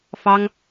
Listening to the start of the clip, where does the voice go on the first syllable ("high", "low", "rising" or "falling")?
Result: high